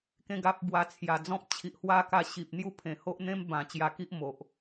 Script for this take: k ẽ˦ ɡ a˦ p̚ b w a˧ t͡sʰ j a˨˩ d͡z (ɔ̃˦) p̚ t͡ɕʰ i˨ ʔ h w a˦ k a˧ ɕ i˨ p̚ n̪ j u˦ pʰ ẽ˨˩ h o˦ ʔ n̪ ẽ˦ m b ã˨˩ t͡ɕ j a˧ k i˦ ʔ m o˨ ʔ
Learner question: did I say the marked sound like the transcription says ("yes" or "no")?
yes